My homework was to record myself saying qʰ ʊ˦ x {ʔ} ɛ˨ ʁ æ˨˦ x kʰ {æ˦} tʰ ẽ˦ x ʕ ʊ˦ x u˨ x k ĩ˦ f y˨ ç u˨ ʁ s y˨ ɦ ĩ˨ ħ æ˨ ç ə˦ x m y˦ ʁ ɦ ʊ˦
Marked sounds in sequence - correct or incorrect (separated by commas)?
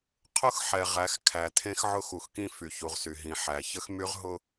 incorrect, incorrect